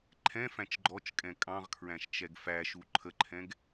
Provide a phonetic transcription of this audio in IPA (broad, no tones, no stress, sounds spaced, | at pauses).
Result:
ǃʰ ɛ̃ f æ̃ t͡ʃ ɡ͡ǃ ɔ t͡ʃ kʼ ɛ̃ kʼ ɑ̃ ʁ kʰ ɹ æ̃ ʃ t͡ʃ ɛ ɡ f æ ʃ u ǃʰ ə ǃʰ ɛ̃ ɡ